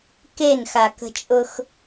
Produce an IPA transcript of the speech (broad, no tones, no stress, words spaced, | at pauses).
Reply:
kenxakə̤t͡ʃʼʊx